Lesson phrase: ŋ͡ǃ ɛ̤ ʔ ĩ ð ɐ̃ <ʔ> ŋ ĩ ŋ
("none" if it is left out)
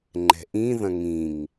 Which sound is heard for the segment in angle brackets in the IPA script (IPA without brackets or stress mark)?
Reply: none